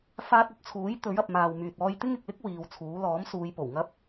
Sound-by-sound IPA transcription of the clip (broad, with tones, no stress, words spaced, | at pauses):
faː˧t̚ɵ˨˥t̚t͡sʰuː˨˥j t̪ɵ˨˥ɥɐ˨p̚ maː˨wmyː˨t̚ ɔː˧jt̪ɪ˥ŋɪ˨k̚lɪ˥k̚ wiː˨˧wt͡sʰuː˨˥ lɔː˨˥msuː˨˧jpo˨˩w ŋɐ˥p̚